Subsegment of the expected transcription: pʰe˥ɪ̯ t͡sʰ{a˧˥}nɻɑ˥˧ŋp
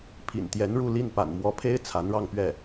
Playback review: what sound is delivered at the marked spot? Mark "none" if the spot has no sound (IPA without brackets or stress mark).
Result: a˧˥